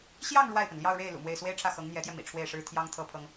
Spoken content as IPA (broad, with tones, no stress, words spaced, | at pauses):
ɕjɑ˥˧ŋ ɻwa˥˩ɪ̯pə˩nljɑ˥˧ʊ̯ɻe˥˩ɪ̯ lṵ˨˩mwe˥˩ɪ̯ swe˥ɪ̯ʈ͡ʂʰä˥˩ xɤ˧˥ŋn̪jɛ˧˥t̪jɛ˧ mḭ˨˩ʈ͡ʂʰwe˥˩ɪ̯ʂɻ̩˥ t̪ʰjɑ˥ŋt̪ʰɤ˥pʰɤ˥ŋ